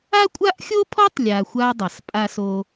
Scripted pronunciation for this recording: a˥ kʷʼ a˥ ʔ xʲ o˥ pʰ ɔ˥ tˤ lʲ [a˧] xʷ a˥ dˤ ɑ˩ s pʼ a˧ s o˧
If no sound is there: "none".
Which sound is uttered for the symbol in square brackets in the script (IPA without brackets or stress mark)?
a˧